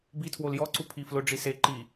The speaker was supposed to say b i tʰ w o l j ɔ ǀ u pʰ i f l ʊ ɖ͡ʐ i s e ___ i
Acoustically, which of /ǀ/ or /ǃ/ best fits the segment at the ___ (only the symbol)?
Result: ǃ